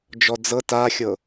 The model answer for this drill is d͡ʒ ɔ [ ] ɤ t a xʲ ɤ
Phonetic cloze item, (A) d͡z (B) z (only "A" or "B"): A